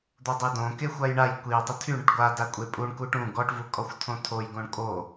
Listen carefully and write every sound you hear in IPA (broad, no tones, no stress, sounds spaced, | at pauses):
d̪ o dˤ e d õ k e xʷ a j ɳ a j kʷ i tˤ ə tʰ y ɳ ə ʈ ɡʷ a d a kʷʼ e pʼ u ɳ k u ʈ ũ ɡ ɔ ʈ v u kʼ ɔ xʷ tʰ õ tʰ o j ɡ õ ɳ kʼ o